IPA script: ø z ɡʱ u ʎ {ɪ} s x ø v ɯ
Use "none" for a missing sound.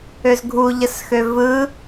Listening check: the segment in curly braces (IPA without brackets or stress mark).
ə